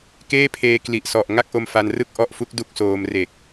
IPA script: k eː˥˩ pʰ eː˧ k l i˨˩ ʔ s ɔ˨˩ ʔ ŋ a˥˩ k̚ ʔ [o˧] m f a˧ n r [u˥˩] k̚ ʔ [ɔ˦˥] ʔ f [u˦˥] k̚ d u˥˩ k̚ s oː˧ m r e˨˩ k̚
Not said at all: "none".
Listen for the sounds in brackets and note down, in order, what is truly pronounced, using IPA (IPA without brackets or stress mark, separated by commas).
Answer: o˧, ɯ˥˩, ɔ˦˥, u˦˥